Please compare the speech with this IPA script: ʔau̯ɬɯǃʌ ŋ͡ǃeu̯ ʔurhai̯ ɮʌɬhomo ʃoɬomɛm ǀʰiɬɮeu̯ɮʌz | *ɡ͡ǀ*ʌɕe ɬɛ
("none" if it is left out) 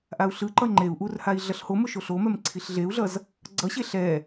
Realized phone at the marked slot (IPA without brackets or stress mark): ɡ͡ǀ